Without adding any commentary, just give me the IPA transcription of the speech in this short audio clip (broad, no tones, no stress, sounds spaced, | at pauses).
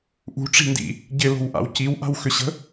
ʔ ṳ ʈ͡ʂ i̤ n d ḭ | ɟ ɪ l o̤ w ʔ a̰ w c i w ʔ a̤ w x ʏ ɕ ə̤